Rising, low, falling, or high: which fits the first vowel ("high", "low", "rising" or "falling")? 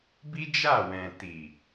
high